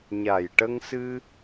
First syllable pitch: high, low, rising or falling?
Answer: low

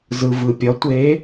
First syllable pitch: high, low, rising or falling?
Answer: low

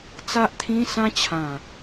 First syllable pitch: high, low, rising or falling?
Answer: high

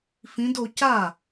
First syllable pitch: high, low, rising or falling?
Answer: rising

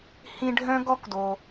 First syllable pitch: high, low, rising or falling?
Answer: high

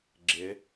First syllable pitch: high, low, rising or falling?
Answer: rising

